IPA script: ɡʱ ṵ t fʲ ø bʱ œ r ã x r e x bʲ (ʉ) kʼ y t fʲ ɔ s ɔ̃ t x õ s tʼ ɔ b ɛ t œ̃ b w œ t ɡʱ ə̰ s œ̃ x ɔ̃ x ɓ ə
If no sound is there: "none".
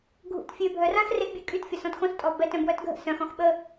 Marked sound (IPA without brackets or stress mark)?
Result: ø